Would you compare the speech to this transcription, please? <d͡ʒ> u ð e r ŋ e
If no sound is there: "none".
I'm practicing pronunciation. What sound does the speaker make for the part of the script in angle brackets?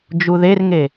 d͡ʒ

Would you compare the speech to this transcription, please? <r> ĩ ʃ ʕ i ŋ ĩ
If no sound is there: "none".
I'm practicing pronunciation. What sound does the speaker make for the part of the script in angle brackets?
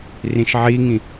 r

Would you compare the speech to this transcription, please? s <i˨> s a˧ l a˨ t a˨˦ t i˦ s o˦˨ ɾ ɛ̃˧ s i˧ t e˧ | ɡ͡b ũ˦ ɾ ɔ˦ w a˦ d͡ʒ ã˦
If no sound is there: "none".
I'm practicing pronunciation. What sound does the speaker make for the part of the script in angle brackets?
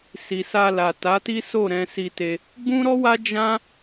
i˨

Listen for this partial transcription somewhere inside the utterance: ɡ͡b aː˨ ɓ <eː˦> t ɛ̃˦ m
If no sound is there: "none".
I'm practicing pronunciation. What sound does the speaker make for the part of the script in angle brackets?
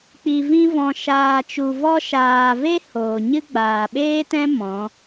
eː˦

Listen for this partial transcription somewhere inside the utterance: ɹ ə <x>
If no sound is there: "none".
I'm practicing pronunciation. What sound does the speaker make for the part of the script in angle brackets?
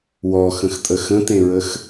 x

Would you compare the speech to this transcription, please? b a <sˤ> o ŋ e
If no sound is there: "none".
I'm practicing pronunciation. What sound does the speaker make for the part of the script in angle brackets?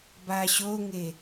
ɕ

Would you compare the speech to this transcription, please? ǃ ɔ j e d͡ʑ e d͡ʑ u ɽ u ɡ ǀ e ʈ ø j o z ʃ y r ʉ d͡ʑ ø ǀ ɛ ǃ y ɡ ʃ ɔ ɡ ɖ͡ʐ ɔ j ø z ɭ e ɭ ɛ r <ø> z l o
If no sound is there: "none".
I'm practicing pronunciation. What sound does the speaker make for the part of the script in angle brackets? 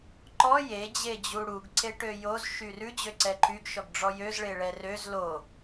ø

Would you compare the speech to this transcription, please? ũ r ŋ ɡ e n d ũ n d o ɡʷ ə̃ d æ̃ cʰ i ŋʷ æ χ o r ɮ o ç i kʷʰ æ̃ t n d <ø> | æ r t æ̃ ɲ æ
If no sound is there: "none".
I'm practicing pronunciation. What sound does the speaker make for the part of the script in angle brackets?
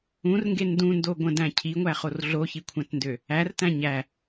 ø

